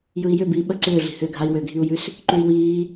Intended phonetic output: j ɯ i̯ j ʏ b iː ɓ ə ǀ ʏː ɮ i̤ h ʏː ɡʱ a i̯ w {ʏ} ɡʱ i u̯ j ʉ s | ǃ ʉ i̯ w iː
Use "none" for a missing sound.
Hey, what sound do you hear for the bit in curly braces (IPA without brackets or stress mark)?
ʏ